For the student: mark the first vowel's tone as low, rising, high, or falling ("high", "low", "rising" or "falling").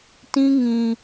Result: high